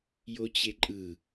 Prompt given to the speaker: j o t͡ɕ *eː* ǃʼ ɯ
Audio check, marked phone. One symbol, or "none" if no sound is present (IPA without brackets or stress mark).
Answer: e